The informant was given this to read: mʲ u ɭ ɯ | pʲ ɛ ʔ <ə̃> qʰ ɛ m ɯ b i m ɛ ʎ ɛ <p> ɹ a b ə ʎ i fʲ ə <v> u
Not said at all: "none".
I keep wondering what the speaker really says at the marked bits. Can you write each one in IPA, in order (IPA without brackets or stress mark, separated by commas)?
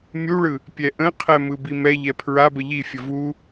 ə̃, pʰ, v